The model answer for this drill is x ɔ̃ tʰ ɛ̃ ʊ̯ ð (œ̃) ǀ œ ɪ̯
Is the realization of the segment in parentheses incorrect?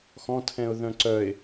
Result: no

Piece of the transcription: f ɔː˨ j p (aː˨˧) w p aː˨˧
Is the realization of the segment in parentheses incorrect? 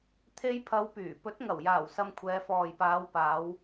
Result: no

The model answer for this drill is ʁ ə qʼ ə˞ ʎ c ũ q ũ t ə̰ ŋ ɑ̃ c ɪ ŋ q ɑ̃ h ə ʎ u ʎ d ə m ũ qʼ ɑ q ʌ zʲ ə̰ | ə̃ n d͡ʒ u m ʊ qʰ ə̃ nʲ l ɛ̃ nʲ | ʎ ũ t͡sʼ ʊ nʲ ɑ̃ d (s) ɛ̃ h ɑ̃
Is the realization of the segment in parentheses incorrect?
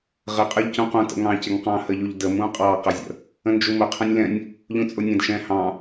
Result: yes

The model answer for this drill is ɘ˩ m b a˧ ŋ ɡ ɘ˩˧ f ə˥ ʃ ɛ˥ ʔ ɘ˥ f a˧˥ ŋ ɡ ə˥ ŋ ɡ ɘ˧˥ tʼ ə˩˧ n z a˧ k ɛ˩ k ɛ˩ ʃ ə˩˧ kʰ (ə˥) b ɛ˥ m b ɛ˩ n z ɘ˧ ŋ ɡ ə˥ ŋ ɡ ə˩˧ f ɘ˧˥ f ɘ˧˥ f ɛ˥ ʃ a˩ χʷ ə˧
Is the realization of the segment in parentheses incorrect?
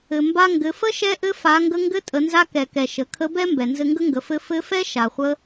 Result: yes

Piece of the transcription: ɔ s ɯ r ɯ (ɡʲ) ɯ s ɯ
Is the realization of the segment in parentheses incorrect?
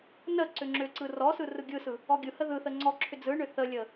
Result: no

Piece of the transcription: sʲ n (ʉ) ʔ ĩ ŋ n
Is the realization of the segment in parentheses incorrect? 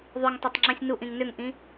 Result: yes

